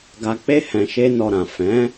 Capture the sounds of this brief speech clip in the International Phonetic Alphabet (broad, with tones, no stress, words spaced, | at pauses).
ɡa˧k͡pe˦ hɛ̃˧ʃe˦nɔ˧ɾã˨ fɛ̃˨˦